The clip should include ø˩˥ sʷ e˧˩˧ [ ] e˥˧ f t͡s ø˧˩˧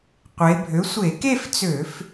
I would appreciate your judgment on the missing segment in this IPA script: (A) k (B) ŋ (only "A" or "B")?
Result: A